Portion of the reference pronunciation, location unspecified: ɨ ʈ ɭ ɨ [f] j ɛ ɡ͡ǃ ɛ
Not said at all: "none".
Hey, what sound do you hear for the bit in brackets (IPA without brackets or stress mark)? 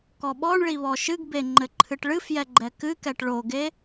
f